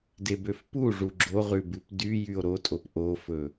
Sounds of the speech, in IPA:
debøfpuʐu ɡ͡ǁoʁʉ bʉpdyjyo̯ ɾotʼop ʔofɵ

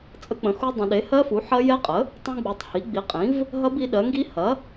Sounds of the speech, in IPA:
t͡sʼə˦˥k͡pə̃˩˥xu˦˥dˤə̃˩˥ ɗe˩˥hɜ˦˥fu˩˥ ħɐ˦˥jɛ˦˥qʼə˩˥ | tˤũ˦˥ɡ͡bu˩˥tˤ hi˩˥ɡ͡bi˩˥qʼĩ˩˥v | ɦɐ˦˥bi˩˥ɗɜ˩˥ŋɡi˦˥ hɐ˩˥

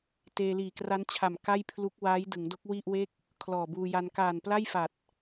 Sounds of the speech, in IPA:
teː˧liː˨˩kra˦˥nt͡ɕʰa˨˩m ka˥˩jpʰlu˦˥k̚waː˦˥j dɯ˩˦ŋdo˦˥k̚ wi˥˩ʔwe˥˩k̚ | kʰlɔː˨˩buː˧ja˧n kaː˨˩npla˥˩jfa˨˩t̚

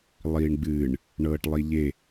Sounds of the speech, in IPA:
lˠiːɳɡ͡bɨːɳ | ɳɤːʈlˠiʎe

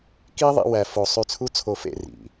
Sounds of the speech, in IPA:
ki˦ ðˤḭ˦wæ˧ fo˧ sˤy˧t͡sʰu˦t͡sʰo˧fḛ˦˨ rḭ˨

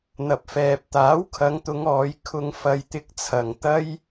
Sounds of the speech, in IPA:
n̪ɐ˨p̚fɛː˨p̚t̪aː˨˥wkʰɐ˨˧ŋ t̪ʊ˨˧ŋɔː˨˧j kʰʊ˧ŋfɐ˧j t̪ɪ˧k̚t͡sʰɐ˨ŋ t̪ɐ˥j

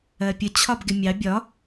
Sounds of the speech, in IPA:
ɜpʲə t͡ɕʰɒbɡɪmʲɑ bʲɒ

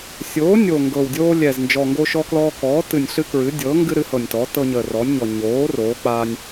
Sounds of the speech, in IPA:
sʲoː˩˥ nʲo˨˩ŋɡɤ˨˩w dʲoː˦lʲɛ˨˩z nd͡ʒɔ˨˩ŋɡo˦ʃɔ˦klɔː˦ kɔː˩˥tɨ˨˩nʲ ɬɨ˦ kɹɨ˩˥ dʲɤː˩˥ŋɡɨ˦ ɾɨ˩˥hɤ˨˩nʲtɔ˩˥tɤ˦ ɲəː˨˩rɔ˩˥nʲɲɔ˨˩ ɲoː˩˥ roː˩˥k͡pa˦nʲ

